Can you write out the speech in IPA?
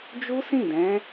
d͡ʒu˦sĩ˦˨dɛ̃˨˦

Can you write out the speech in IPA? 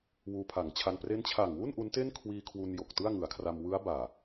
wuː˧pʰa˩˦ŋt͡ɕʰa˧n pre˦˥nt͡ɕʰa˨˩ŋwu˥˩n ʔu˦˥nte˥˩n kʰwiː˧kʰwu˧n jo˨˩k̚tɯ˥˩a̯ŋɯ˩˦a̯kʰra˧m wɯ˦˥a̯baː˨˩

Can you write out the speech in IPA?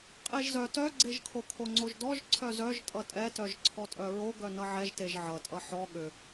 qʼeʒzœ tœɡ͡ǀeʒkʰo kʰoŋ͡ǀoʒdɔʒ ǀʰœzœʒ tʼʌtʼɛtœʒ ǀʰɔtʼœɹoɡœ nʌʕɛʒteʒ ʕʌtʼʌ ħɔ ɠʏ

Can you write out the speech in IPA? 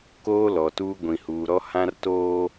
koː˦lɔ˨tuː˦ ɡʷĩ˨huː˨ɾɔ˦ hã˦rtoː˦

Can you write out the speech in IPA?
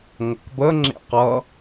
ŋʷʌkbə ŋ͡ǁḛqʌ

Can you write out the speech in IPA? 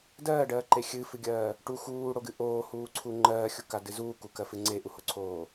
dɜːɖɜːǃe xʲɨfɨɡʲɜː | ʈu xuːɽoɡɨ ʔoːhuːǀʰu ŋ͡ǃɜːxʲukadɨ zuːkukɜfɨ ŋ͡ǀeʔuhoǀʰoː

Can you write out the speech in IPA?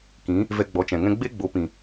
kĩ˨˦ | vɛ˧ɡ͡bɔ˨˦t͡ʃɛ̃˨ŋɛ̃˦ ɡ͡be˦ɡ͡bo˨˦pĩ˨

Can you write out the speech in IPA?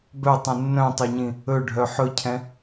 bœtˤɛ̃ nːœ̃tˤoɲĩ | ɵɖʱœ ħɵcʰɛ̃

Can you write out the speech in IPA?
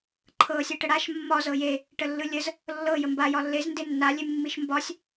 ǃʰɤ sʲɤʈəɽaʃ mːɒ zɤje | ʈəlːɯlʲəz | lːɤ jəmba jɒlːez ndenːa lʲemːiʃmbɒsʲ

